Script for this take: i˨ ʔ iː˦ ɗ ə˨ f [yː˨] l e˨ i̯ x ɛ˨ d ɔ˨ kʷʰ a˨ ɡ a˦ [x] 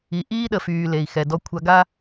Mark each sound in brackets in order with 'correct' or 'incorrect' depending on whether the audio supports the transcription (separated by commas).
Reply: correct, incorrect